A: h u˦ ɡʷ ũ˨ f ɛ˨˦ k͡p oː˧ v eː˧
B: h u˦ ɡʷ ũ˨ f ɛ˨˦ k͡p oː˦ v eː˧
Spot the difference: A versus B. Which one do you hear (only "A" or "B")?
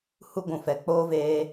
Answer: B